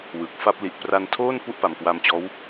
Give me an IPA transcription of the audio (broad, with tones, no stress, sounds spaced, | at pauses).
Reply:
w ɯ˨˩ k̚ f a˥˩ p̚ l i˨˩ ʔ p r a˧ n tʰ oː˥˩ n p u˥˩ ʔ p a˨˩ m k w a˧ m t͡ɕ ɔː˦˥ w